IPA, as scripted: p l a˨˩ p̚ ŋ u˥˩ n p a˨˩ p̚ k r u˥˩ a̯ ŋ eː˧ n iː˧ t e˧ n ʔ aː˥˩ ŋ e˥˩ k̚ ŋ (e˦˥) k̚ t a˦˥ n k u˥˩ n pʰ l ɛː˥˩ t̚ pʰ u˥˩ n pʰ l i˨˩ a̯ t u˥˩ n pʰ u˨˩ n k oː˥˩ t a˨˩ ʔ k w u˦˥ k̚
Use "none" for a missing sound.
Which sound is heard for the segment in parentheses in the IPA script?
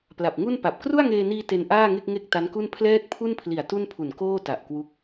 e˥˩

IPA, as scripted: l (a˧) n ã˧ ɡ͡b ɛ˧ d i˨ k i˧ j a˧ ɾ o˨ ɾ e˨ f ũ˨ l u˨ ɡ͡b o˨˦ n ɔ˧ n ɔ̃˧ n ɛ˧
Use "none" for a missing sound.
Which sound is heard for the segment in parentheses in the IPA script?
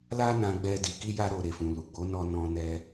a˦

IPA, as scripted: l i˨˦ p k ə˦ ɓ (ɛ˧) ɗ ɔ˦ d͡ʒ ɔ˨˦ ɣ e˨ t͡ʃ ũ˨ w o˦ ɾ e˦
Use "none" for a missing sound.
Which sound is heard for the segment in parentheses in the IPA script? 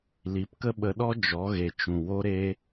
ə˧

